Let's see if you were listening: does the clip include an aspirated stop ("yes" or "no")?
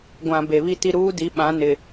no